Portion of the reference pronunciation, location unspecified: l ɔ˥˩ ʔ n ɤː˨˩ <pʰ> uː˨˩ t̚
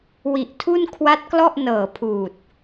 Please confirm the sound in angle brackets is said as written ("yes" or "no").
yes